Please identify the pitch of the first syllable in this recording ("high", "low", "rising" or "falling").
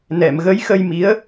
low